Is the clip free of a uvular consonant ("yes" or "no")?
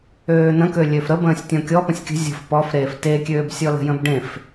yes